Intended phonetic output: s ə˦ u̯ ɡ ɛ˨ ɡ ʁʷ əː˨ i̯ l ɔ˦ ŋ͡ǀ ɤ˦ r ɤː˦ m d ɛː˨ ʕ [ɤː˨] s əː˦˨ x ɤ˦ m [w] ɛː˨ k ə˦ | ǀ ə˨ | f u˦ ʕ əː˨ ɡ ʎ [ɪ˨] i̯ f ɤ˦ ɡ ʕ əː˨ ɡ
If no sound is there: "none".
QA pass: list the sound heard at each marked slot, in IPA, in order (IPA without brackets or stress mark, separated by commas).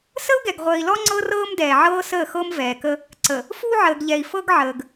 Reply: ɤː˦, v, ɛ˨